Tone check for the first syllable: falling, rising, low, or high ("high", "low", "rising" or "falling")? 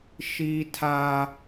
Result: high